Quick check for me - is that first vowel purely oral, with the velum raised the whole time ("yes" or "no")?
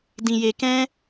no